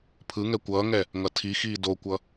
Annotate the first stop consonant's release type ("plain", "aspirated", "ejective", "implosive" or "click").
aspirated